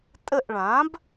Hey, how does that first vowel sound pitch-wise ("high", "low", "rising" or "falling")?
falling